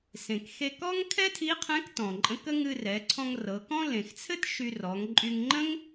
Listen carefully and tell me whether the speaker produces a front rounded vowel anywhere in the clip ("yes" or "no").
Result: yes